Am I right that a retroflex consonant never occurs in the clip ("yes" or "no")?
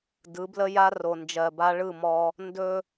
no